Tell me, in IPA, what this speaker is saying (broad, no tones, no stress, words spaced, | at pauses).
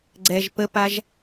ɡ͡ǀɛʒ pəpaʒ